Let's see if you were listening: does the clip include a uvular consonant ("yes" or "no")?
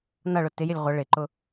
yes